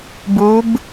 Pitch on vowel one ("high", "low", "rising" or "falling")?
rising